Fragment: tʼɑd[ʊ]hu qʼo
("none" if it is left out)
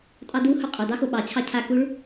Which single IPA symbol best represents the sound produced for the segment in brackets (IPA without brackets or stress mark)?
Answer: u